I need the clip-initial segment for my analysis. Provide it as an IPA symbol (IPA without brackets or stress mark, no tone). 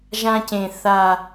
ʒ